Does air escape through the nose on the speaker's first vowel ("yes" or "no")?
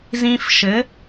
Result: yes